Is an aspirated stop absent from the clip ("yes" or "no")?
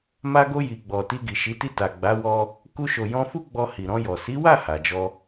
yes